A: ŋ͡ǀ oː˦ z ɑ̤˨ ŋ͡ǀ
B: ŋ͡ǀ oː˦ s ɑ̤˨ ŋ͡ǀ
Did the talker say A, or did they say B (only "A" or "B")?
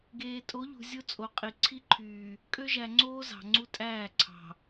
A